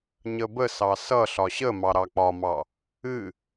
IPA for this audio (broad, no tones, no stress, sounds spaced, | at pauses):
ɲ ə b ə s ɑ s ʌ ɬ ɒ ɕ ə m ɑ ɾ ɑ k͡p ɒ m ɑ | ɨ